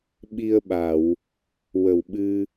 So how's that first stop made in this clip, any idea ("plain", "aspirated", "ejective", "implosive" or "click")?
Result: implosive